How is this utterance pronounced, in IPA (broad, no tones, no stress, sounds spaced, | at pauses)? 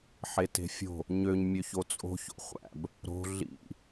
ħ e t e̤ fʲ o̤ | ɲ ø ɲ mʲ ø ç o t͡sʼ o̤ ç o̰ χʷ æ̰ b | ɾ o̤ ɮ ḭ